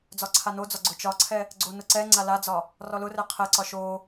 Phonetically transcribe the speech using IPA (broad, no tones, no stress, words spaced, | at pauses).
d͡zɒǀʰanod͡zɒ ɡ͡ǀʊt͡ʃɒǀʰɛ | ɡ͡ǀonʊǀɛŋ͡ǀa lad͡zɒ | rɔlʊrɛ qʰɛǀɒ ʃo